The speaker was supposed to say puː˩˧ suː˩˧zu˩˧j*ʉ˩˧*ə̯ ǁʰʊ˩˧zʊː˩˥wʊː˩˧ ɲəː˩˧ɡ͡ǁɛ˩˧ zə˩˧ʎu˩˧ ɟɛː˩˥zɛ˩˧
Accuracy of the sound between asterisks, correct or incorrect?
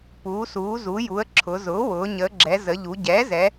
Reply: incorrect: u˩˧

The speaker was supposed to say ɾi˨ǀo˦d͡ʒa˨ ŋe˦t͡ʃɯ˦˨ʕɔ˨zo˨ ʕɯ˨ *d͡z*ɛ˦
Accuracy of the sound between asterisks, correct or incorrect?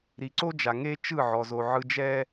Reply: incorrect: d͡ʒ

